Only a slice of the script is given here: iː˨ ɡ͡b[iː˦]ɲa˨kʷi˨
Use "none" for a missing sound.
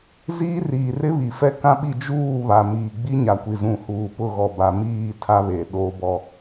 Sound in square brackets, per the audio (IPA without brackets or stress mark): i˦